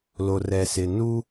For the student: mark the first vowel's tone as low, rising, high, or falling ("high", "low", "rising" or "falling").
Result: low